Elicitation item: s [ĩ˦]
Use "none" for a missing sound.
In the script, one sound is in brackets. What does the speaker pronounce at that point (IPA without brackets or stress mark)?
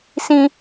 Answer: ĩ˦